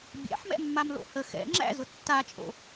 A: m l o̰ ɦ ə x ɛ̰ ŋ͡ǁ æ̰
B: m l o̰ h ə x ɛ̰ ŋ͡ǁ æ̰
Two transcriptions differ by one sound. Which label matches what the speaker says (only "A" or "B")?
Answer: B